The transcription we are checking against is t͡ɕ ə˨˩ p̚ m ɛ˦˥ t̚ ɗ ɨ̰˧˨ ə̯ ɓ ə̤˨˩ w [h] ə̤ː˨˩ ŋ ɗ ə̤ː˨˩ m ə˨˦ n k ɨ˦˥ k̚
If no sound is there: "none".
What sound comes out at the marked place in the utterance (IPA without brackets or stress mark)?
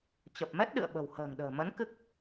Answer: h